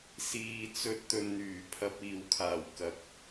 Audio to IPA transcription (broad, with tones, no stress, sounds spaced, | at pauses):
s iː˨ t͡s ɵ˧ t̚ t̪ ɵ˨ n n̪ yː˨˩ pʰ ɐ˧ p̚ iː˨ w kʰ aː˨˩ w k ɐ˨˥ k̚